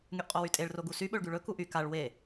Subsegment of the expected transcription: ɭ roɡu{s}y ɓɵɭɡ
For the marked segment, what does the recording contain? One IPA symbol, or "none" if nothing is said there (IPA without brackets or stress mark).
s